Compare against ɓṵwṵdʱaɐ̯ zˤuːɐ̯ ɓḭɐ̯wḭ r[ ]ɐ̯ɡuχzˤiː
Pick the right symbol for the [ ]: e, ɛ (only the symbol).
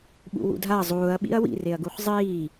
e